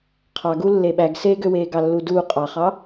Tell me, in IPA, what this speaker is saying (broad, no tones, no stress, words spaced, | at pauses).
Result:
qʰɑɡulːe ɓæɡseːɡøweː ɡɑlːuːduː qʼɑχɑ